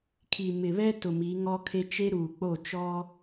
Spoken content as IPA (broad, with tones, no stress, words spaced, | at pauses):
kʰi˨mɪ˨βɛ˦ tʊ˨mi˨˦ŋɔ˦kʰe˦ t͡ʃe˦ɾuː˨k͡po˦˨ t͡ʃɔ˦